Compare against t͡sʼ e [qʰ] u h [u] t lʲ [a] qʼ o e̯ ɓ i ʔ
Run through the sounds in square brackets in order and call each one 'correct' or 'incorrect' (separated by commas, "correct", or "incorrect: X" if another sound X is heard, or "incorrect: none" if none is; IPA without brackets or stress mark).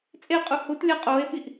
incorrect: qʼ, correct, correct